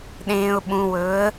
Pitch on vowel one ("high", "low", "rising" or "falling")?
low